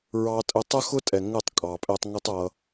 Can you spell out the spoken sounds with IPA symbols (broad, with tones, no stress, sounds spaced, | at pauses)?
ɹ ɑ˦ tʼ ə˦ tˤ ə˦ x ʊ˦ tʼ ɛ˨ ŋ ə˦˨ tˤ kʼ ɑ˨ pʼ ɛ˧ tˤ ŋ ə˦ tˤ ʌ˧